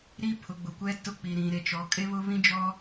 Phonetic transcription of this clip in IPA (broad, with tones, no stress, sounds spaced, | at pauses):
ɾ i˦ pʰ ʊ˨ ɡ͡b ʊ˨ kʷ ɛ˦ t ʊ˦ k͡p i˨ ɾ ĩ˨ ɾ e˨ t͡ʃ ɔ˨˦ kʼ e˦ β ʊ˦ β ĩ˦ d͡ʒ ɔ˦